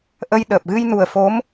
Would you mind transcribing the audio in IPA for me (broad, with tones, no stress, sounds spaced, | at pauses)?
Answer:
ʔ ə˧ j ɗ əː˨˩ p̚ ɣ ɨ˧ j n u˨˩ ə̯ f o˧˥ m